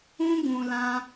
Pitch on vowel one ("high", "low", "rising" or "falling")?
high